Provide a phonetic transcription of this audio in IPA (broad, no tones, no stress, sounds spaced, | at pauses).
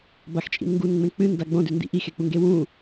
b a x t͡ʃʼ ḭ n ŋ ɡ u n ŋ͡m ẽ k͡p ɨ n d a ɡ͡b õ d ʉ n d ḭ ʔ i x e k͡p u ŋ ɡ e w ũ